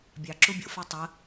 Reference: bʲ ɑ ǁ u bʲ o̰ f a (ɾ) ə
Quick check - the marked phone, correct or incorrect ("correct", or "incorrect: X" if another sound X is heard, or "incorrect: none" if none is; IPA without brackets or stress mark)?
incorrect: tˤ